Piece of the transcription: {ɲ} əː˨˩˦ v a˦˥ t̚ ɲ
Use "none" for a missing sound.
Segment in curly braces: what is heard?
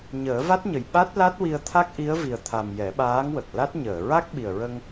ɲ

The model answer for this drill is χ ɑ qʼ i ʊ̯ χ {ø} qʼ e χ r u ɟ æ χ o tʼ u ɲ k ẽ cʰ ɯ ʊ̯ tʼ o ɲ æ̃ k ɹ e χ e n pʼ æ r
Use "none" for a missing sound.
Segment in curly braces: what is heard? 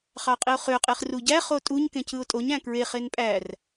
ø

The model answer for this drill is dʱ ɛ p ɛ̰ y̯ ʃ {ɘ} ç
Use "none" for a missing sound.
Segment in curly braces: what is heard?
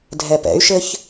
ɘ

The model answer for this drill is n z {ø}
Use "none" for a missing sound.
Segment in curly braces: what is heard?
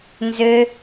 ø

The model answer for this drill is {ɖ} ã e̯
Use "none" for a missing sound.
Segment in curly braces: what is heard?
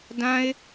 d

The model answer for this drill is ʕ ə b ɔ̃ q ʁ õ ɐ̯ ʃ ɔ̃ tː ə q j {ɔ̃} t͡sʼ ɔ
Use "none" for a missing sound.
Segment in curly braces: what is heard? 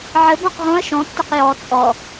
ɔ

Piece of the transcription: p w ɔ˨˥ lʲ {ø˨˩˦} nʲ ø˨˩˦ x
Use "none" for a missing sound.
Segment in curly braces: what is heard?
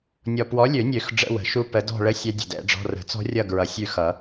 ø˨˩˦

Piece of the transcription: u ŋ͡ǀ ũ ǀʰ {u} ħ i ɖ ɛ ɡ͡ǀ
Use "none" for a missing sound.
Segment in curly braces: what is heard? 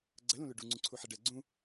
u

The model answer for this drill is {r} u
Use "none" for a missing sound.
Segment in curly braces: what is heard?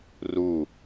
r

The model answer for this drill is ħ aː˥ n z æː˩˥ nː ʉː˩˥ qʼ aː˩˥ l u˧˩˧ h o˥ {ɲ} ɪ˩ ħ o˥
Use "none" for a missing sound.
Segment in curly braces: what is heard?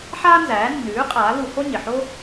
ɲ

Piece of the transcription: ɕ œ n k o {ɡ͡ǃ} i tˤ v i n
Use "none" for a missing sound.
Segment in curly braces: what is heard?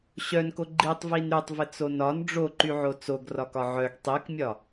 ɡ͡ǃ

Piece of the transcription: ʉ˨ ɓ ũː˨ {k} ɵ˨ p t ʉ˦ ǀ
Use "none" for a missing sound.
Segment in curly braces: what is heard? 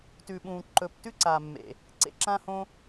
ǃ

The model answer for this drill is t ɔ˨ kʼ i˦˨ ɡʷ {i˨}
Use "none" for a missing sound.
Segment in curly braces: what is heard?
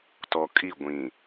ĩ˨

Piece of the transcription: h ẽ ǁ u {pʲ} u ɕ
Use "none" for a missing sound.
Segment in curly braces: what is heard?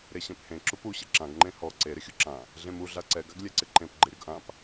p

